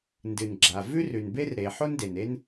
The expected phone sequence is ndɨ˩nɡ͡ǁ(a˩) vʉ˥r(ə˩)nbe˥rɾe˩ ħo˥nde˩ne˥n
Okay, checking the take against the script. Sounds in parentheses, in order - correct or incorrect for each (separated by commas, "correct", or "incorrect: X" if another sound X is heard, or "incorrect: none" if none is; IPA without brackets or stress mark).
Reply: correct, incorrect: ʉ˩